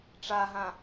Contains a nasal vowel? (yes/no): yes